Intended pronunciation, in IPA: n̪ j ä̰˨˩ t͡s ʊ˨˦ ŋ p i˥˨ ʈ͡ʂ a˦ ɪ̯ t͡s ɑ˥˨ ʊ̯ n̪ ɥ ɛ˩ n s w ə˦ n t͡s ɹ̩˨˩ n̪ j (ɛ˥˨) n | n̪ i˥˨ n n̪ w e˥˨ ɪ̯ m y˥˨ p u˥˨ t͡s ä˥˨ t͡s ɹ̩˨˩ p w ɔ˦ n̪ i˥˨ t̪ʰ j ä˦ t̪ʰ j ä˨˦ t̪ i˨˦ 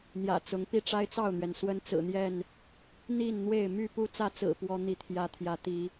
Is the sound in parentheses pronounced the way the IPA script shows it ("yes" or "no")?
yes